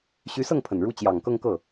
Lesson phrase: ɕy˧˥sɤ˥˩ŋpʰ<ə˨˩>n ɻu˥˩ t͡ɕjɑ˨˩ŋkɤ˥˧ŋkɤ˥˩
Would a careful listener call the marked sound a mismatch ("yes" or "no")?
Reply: no